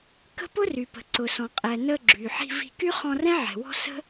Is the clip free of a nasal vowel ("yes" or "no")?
no